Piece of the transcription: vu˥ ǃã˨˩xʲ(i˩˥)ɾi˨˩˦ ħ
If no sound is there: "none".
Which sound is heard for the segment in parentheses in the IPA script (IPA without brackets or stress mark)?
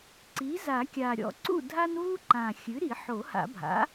ɨ˩˥